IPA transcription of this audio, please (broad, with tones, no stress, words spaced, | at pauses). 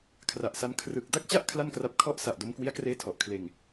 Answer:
kʰra˨˩ʔsa˧n kʰrɯ˨˩k̚ da˥˩k̚t͡ɕa˥˩ʔ kʰla˥˩nkra˦˥p̚ kʰɔ˦˥ʔsa˨˩ʔdo˧m kwi˦˥a̯kreː˦˥ tʰɔ˨˩ʔkʰleː˧ŋ